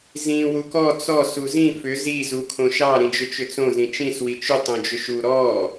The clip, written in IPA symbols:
z ĩ w u k ɔ t͡s ɔ s u z ĩ f ʏ z i z u kʰ õ ʃ ɑ ɾ ĩ d͡ʒ ʏ t͡ʃ ʏ t͡s õ z ĩ t͡ʃ ĩ s w i t͡ʃ ʏ tˤ õ d͡ʒ ʏ ʃ u ɾ ɔ

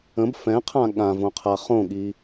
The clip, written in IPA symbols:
ə̃ b f ɛ̃ qʰ ã ɠ ã v õ qʰ a χ õ ɠ i

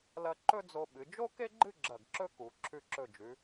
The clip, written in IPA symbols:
l ɐ˧ ǃ ɵ˥ d͡z o˧ ɓ ɨ˩˧ d͡ʒ o˥ k e˥ ɡ͡ǃ ɨ˥˧ ɡ͡ǁ ɐ˧˩ ɡ ǁ ɵ˥ k u˩˧ ǁʰ ʉ˧ ǁ ɵ˧˩ d͡ʒ ʉ˩˧

